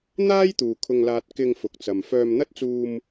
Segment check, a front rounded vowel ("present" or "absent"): present